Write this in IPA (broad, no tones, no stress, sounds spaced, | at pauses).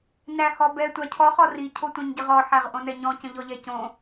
n æ h ɔ b ɛ tʷ a cʰ ɔ χ ɔ r i cʰ o tʷ ɛ̃ ɲ ɟ ə ʁ ɔ ħ æ ʁ ʔ õ n ɛ ɲ ɔ̃ c ə̃ ʎ ɔ ʎ ɛ c õ